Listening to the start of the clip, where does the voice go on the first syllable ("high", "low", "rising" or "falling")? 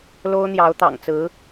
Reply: high